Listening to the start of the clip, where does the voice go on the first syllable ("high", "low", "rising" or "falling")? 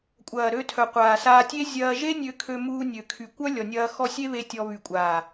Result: low